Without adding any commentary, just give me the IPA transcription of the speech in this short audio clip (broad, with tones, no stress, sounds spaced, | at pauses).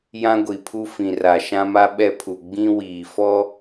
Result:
j ã˦ ɡʷ i˨ pʰ u˦ f ĩ˨ r a˨ ʃ ã˦ m a˦ ɓ ɛ˦ pʰ u˨ ɡ͡b ĩ˦ w iː˨ f ɔ˦